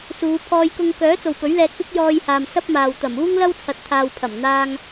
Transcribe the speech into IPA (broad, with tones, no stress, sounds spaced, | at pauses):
s uː˨˧ pʰ ɔː˧ j k ʊ˧ ŋ k œː˨˥ t͡s o˨ w p ɵ˨˥ ɥ l ɛː˧ k̚ p ɪ˥ k̚ j ɔː˧ j h aː˨ m s ɐ˥ p̚ m aː˨ w t̪ ɐ˨˩ m uː˥ ŋ l ɐ˥ w t͡sʰ ɐ˨ t̚ t̪ʰ aː˨ w pʰ ɐ˨˩ m n̪ aː˧ ŋ